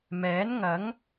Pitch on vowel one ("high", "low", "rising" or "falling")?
rising